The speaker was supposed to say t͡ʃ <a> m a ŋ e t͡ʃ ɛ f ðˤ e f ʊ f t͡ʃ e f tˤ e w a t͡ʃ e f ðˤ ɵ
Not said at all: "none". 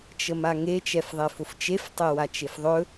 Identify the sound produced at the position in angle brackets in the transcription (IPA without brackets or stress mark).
ə